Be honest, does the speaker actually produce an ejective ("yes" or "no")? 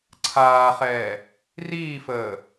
no